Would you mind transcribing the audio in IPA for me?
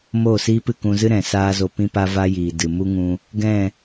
m oː˦˨ s iː˦ p ɨ˦˨ k ũ˧ z ɨ˦ ɾ ɛ̃˨ s aː˦ z o˧ p ĩ˦ p a˦ v a˦ j iː˨ d ɨ˨ m u˦ ŋ ũ˧ | ɡ ɛ̃˦˨

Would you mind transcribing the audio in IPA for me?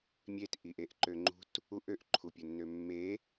mʲ e t ʔ i ʔ e ʔ ǃ ø ŋ͡ǃ ṳ t | u ʔ ø ʔ ǃʰ u pʲ ɵ nː ø mː e

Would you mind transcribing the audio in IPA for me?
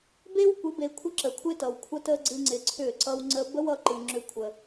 b e˦ w kʷ ɪ˨˦ b e˨ kʷʰ ə˦ ǁ ə˨ kʷʰ ɪ˦ t ʌ˨ w kʷʰ ə˦ t ə˦ ɡ͡ǀ ɨ˧ ŋ͡ǀ ɪ˧ ǀʰ ʏ˦˨ ǀ ʌ˦ w ŋ͡ǀ ə˧ b ə˦ w ʌ˧ ǃ ɨ˨ ŋ͡ǁ ʏ˦ kʷʰ ə˧

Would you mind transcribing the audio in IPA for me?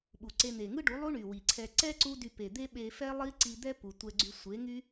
ɓ u˨ ǀ e˧ n̪ e˨ ŋ ɯ˦ ɖ u˨˦ lˠ u˦ ɳ y˨ w i˨ ǀʰ ɛ˧ ǀ ɛ˦ ǀ u˦ d y˧ p e˨ d̪ e˦ ɓ e˧ f ɛ˦ lˠ i˦ ǀ i˧ d̪ ɛ˦ p u˨ tʷ ɛ˧ ɡ͡ǀ y˧ sʷ e˨˦ ŋ y˦

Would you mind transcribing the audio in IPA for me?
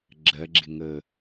ɡ͡ǁ ɜ ɡ͡ǁ ɪ ŋ ə

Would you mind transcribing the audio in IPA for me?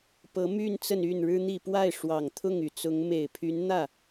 p ɤ˧˥ m y˥˧ n t͡s ə˥˧ n y˥˩ n ɻ ɻ̩˥ n̪ i˥˧ p w a˥˩ ɪ̯ ʂ w ɑ˨˩ ŋ t̪ʰ ʊ˥˩ ŋ y˨˩ t͡s ʊ˧˥ ŋ m e˨˩ ɪ̯ pʰ y˧˥ n n̪ ä˥˩

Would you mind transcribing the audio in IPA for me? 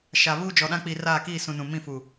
ʃ a˨ β uː˦ d͡ʒ ɔ˨ ɗ ã˦ k͡p i˨ r aː˦˨ k iː˦˨ s ũ˨ n ũ˨ m ĩ˦˨ f u˨

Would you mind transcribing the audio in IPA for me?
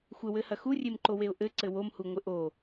xʷ ɘ w ɘ h ɐ x u rʲ e m ǃ o w e ʊ̯ ʔ ɘ ǀ ɘ w o m h u ŋʷ ɘ ʔ o

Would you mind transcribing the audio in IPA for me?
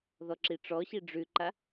ð ɔ ǁ i ʈ͡ʂ ɔ ɕ i ɖ͡ʐ ʉ ǃ a

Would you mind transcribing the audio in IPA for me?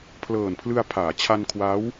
pʰ l ɤː˨˩ n pʰ l ɯ˧ a̯ pʰ aː˩˦ t͡ɕʰ a˧ n kʰ w a˦˥ w

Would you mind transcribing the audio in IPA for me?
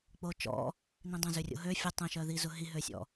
k͡p o t͡ʃ ɔ̰ | n ĩ dˤ ɐ̃ z ø rʲ o̰ ɦ ø fʲ ə tˤ ə̃ ʃ œ ð i z ʊ ɦ i ɦ ø sʲ ɔ̰

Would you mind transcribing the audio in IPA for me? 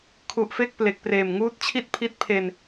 kʰ u˨˩ ʔ f e˥˩ k̚ p l e˨˩ k̚ p r eː˨˩ m ŋ uː˦˥ t̚ t͡ɕʰ i˥˩ t̚ pʰ i˦˥ t̚ pʰ e˧ n

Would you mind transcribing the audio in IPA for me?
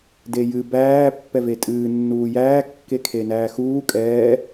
d e j ɨ b æː pː ɛ v e tʼ ɨː nː uː j æː kː e kʰ e n æː x uː kʼ ɛː

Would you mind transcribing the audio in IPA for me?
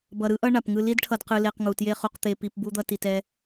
b ʌ˨ ɾ ɯ˦ ʔ ʌ˦ ɳ a˨ p ŋ ɯ˧ l i˦ d ʈʰ ʌ˧ d q ɯ˧ l e˧ q ŋ u˨ t j e˦ χ u˧ q t̪ e˧ p i˧ p b u˦ d̪ ʌ˦ t i˧ t ɛ˦

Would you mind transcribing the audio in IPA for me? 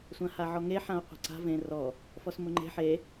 sʷ ã h a ʕ ɔ ŋ e ħ ã o̯ qʷ ɛ̤ ǀ a̤ v ẽ r ɔ | f ɔ s m ʊ ŋ͡ǃ e̤ ħ e

